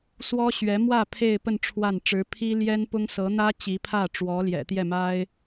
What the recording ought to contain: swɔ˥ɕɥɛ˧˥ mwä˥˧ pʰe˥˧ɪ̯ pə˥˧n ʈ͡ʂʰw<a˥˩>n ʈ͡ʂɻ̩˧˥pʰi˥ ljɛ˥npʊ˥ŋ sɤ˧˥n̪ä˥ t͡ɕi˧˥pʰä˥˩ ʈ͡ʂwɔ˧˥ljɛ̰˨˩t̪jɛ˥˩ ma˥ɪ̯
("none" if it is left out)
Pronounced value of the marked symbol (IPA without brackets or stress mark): a˥˩